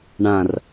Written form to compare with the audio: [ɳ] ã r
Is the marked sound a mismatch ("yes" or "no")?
no